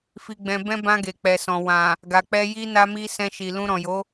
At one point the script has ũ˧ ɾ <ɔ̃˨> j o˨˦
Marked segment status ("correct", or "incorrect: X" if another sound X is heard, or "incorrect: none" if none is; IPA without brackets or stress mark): correct